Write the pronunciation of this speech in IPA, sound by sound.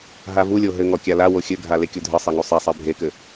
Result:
ɦ a v u lʲ o ɦ ɘ ŋ ɔ kʲ a l a w o xʲ ɘ ɡʱ a l e kʲ o dʱ ɘ sˤ ɛ ŋ u sˤ e sˤ ɛ bʱ e k ɘ

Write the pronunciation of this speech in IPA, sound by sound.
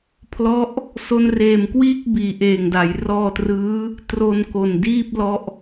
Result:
pʰ l ɔ˦˥ ʔ | s o˧ n r eː˨˩ m k w iː˥˩ k̚ b iː˩˦ ʔ eː˨˩ ŋ d a˩˦ j r ɔː˧ t r ɯː˦˥ | t r o˧ n k o˨˩ n d iː˥˩ p̚ l ɔ˥˩ ʔ

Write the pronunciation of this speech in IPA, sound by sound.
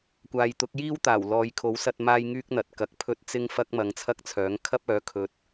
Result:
kʷ aː˨ j t̪ ʊ˨˥ k̚ j iː˥ w t̪ aː˨˩ w l ɔː˨˧ j kʰ o˨˥ w s ɐ˧ t̚ m aː˥ j ŋ yː˥ k̚ n̪ ɐ˨˥ t̚ k ɐ˨˥ k̚ pʰ ɵ˥ t̚ t͡s ɪ˥ ŋ f ɐ˥ k̚ m ɐ˧ ŋ t͡sʰ ɐ˥ k̚ t͡sʰ œː˨˥ ŋ kʰ ɐ˥ p̚ œː˨˥ kʰ ɵ˨˥ t̚

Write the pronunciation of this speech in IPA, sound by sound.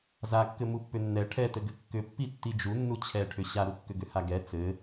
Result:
z a kː ɘ m u pː ʏ nː ɛ ʈʰ ɛ t ɘ ɡ ɘ kː ʏ pː i tː i d͡ʒ u nː u t͡ɕʰ ɛ ʈʰ ʏ ɕ a ɾ u kː ʏ ɡ ʏ h a ɡ ɛ t͡s ɘ

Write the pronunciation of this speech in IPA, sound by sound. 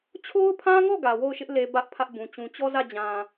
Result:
t͡ɕʰ o˦ ʊ̯ pʰ ã˦ ŋ ɔ˦˨ ɡ ä˨ w o˦˨ ʊ̯ ʃ ɪ˦ ʔ l e˨ b ä˦ ʔ pʰ ä˦ ʔ b ũ˨ t͡ɕ ũ˨ t͡ɕ ɔ˦ z ä˦˨ d͡ʑ ã˨

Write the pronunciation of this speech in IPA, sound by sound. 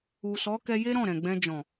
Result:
u˨ s ɔ˨˦ k ɛ˧ j e˦ ɾ ɔ̃˦˨ ɾ ɛ̃˨ ɡ͡b ɛ̃˧ d͡ʒ ɔ̃˨

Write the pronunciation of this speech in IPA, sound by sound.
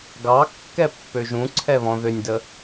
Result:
ɡ ɑ kː ɛ pː ø ʒ ũ ǀʰ ɛ β ɔ̃ ð ʏ nʲ d ə

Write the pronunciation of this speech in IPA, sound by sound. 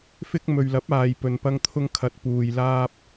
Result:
f ɪ˧ k̚ m ɵ˨ ɥ l ɐ˨˥ p̚ aː˨ j p ɵ˨ n p ɐ˧ ŋ t̪ʰ ʊ˧ ŋ kʰ ɐ˨˥ t̚ p uː˨ j l aː˧ p̚

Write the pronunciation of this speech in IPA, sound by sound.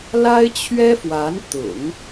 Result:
l a˥ ɪ̯ t͡ɕʰ ɥ ɛ˥ f w a˧˥ n t̪ ʊ̰˨˩˦ ŋ

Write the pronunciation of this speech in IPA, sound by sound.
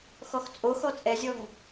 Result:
x ɔ x t͡sʼ o x ɔ t͡sʼ ɛ zʲ ɔ ŋ

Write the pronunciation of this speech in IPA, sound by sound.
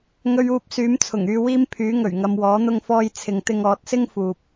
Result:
ŋ ɵ˧ ɥ uː˧ p̚ s yː˨˥ m t͡sʰ ʊ˨˩ ŋ yː˧ w iː˧ m pʰ yː˨˥ ŋ ɵ˨˩ ɥ ŋ ɐ˨ m w ɔː˨˥ n̪ ʊ˧ ŋ f ɔː˧ j t͡sʰ ɪ˨ ŋ t̪ ɪ˧ ŋ ɔː˨˥ t̚ s ɪ˥ ŋ f uː˨ p̚

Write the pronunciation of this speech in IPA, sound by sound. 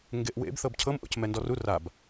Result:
ŋ ɡ e ʔ w ḛ b θ ɤ b cʰ ɤ m ʔ o̰ c m ɛ n d ɔ r u r a b

